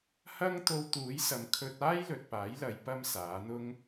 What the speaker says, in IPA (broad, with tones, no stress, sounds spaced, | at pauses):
h ɐ˥ ŋ t̪ o˧ w t̪ uː˨˥ j s ɐ˨˧ m kʰ ɵ˧ t̚ aː˥ j l ɵ˨ t̚ p aː˨˥ j l ɐ˨˧ j p ɐ˥ m s aː˨˥ n̪ ʊ˥ ŋ